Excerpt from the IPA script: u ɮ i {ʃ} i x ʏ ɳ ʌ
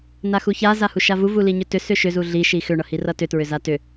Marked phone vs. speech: correct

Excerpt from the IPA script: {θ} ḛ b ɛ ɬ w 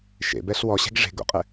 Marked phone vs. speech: incorrect: ʃ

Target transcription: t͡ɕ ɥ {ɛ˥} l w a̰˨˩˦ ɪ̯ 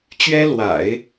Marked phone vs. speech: correct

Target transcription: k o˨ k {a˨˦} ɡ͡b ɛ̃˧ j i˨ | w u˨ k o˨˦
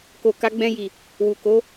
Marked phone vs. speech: correct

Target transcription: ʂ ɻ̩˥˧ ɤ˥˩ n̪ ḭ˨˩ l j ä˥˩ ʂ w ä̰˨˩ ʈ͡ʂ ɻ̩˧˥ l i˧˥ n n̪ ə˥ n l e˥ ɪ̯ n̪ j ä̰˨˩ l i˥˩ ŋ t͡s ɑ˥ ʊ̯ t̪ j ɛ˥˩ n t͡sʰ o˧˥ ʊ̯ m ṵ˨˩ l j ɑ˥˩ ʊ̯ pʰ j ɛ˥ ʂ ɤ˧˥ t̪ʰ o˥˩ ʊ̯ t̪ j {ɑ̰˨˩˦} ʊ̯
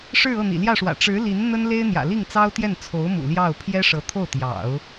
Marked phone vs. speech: correct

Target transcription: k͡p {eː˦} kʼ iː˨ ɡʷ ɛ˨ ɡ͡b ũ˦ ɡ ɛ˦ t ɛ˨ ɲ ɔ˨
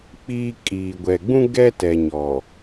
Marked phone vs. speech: incorrect: iː˦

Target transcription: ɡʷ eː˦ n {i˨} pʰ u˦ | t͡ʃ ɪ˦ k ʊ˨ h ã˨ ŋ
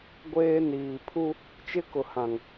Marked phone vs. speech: incorrect: iː˨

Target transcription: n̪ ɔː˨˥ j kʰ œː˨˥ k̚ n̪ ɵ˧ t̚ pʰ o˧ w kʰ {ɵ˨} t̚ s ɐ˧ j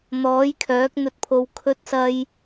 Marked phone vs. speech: incorrect: ɵ˧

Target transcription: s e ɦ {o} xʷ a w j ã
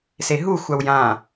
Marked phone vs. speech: incorrect: u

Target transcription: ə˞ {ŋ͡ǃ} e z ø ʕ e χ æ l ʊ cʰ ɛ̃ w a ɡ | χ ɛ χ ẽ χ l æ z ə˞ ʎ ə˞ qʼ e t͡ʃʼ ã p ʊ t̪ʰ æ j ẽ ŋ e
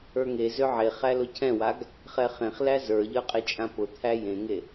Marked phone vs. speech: incorrect: ŋ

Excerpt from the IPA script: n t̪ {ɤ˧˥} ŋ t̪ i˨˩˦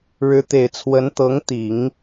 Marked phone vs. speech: correct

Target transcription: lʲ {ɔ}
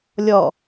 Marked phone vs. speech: correct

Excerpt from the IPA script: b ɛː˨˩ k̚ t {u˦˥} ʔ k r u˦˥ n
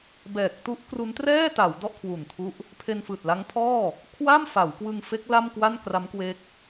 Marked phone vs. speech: correct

